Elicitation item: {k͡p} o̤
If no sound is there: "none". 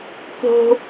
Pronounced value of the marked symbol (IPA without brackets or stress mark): k